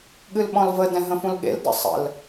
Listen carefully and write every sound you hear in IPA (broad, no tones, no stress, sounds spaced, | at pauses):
ɠ ɨ l ɓ ɔ̃ l v ə d ɛ̃ ɦ ə̃ f ũ l ɠ ḛ l d ə̰ sˤ ə̰ l